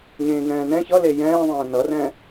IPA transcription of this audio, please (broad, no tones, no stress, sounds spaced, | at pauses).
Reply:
ɲ ẽː ŋ ɛ̃ː n ɛ̃ ç ʌ l e j ɛ̃ː ðˤ ɛ̃ː n ʌ r ɛ̃ː